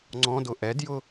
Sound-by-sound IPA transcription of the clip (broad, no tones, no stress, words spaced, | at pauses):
ŋ͡ǀɔ̃dʊ ʔɛdjʊ